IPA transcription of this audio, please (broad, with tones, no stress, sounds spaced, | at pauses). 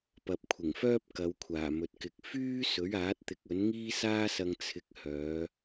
p ɐ˨ p̚ kʷʰ ɪ˨˩ ŋ f œː˥ p̚ k ɐ˨˧ w kʷʰ aː˨˩ m ɵ˨ t̚ k ɪ˨˥ k̚ f yː˥ s ɵ˨˥ ɥ aː˨˥ t̚ t̪ ɪ˨˥ k̚ ɵ˨˥ n ŋ iː˥ s aː˥ s ɐ˧ ŋ t͡sʰ ɪ˨˥ k̚ h œː˨˧